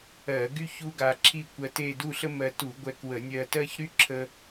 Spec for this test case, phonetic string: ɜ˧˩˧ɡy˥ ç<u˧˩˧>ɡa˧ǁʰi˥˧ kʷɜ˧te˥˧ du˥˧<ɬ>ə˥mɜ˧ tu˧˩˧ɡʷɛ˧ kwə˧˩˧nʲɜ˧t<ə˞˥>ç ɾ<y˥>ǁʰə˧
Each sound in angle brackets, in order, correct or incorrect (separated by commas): incorrect, correct, incorrect, correct